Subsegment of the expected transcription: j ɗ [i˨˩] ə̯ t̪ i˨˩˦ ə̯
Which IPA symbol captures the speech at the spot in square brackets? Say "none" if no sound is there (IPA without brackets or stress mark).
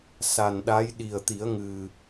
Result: i˨˩